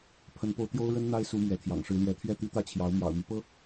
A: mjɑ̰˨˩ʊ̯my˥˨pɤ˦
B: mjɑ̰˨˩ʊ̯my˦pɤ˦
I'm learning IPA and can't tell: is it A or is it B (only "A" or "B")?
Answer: B